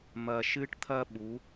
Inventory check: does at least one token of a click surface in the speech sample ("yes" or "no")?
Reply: no